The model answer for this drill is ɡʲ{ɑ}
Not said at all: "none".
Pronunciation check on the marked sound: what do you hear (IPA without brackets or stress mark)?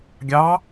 ɑ